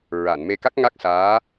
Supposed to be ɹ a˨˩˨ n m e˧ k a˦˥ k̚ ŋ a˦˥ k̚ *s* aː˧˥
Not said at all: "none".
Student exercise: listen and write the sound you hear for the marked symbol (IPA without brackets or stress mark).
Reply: s